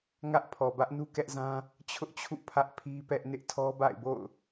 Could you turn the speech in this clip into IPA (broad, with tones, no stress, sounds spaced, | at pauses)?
ŋ ä˦ ʔ pʰ ɔ˨ b ä˦ ʔ n u˦ k ɛ˦ ʔ z ã˦ | t͡ɕʰ ʊ˦ ʔ t͡ɕʰ ṵ˦˨ pʰ ä˦ ʔ pʰ i˦ p ɛ˦ ʔ n ɪ˦ ʔ tʰ ɔ˦ b a̰˦˨ ɪ̯ b o̰˦˨ ʊ̯